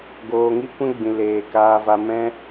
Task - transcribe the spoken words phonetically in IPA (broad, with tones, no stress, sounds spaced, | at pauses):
ɡ oː˨ ŋ i˦ kʷ ɛ̃˦ ɡ͡b ĩ˨ l eː˨ k aː˧ v a˧ m ɛ̃˦